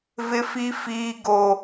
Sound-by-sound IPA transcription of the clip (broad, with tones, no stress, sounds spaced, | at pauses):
v ɪ˦ f i˦ f iː˦ ɡ o˦